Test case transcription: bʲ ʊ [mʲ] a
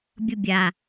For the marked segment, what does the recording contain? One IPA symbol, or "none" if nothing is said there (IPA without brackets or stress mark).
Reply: bʲ